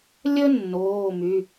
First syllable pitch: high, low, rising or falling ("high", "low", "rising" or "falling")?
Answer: high